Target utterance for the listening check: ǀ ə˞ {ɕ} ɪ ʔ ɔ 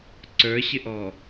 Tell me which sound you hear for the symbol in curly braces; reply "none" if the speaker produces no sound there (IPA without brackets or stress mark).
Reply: ɕ